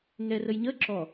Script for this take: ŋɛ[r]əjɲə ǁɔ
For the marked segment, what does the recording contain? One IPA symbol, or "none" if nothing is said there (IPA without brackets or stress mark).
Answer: r